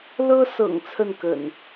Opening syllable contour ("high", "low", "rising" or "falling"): high